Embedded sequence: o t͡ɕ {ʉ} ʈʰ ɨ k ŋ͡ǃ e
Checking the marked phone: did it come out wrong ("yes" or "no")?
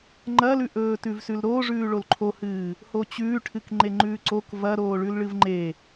yes